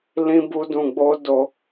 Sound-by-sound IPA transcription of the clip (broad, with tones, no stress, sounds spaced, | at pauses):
l ĩ˦ b u˦ d ũ˧ ɡ͡b o˦ d o˧